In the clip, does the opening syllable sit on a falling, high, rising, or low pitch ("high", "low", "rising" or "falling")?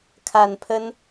low